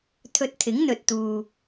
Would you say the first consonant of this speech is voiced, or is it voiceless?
voiceless